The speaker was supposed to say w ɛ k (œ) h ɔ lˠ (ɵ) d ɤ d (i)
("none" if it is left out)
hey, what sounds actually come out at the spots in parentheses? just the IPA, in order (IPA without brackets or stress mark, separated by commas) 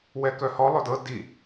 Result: œ, ɵ, i